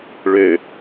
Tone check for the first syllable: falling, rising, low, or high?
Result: low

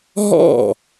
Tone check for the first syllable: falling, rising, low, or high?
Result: falling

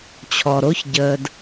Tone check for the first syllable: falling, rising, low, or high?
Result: low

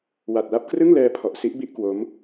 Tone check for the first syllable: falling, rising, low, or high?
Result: low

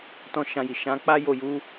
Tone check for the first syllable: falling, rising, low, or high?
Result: high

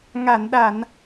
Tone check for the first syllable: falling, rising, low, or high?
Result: low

